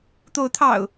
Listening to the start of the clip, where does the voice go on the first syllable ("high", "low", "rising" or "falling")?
rising